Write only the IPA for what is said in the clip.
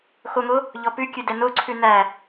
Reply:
xoŋo | ʎɔpʉkʲʉdɛ noǀʰʉ næ

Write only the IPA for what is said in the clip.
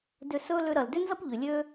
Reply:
dʏ˧sɵ˥ lʏ˧ɾɐ˩ldʏ˥nzɐ˥p ʎʏ˩lʲø˧

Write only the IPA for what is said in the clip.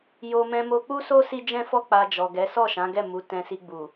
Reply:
jo˧ mɛ̃˧mo˧k͡pu˦so˦ si˦d͡ʒɛ̃˦fɔ˦ k͡pa˧d͡ʒɔ˨ɡɛ˨˦ sɔ˦˨ʃã˨˦ɡɛ˦˨ mu˨˦tɛ̃˧si˧ɡ͡bu˨

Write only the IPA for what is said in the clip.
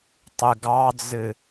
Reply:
tˤɨɡɑd͡zɨ

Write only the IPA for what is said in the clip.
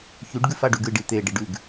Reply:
çʉɖ ɡʉfaɖʉɡɨɖ it̪e ɖiɖʉɡ

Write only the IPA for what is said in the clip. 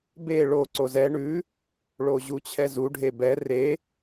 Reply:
be ɭo ǀozɛ ɳʉ | ɭoʑut͡ɕʰɛzu ɖʱebɛ re

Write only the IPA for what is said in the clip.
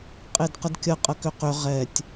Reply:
qʼedqədkʲə qʼəkʏqʏ ʁɛtʲ

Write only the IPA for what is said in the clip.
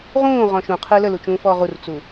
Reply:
ʁũːʁɔ̃ ʃũqʰɯ ləlut͡ʃũːfɔː ʁurt͡su

